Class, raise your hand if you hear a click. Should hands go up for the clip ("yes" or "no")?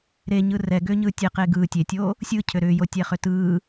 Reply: no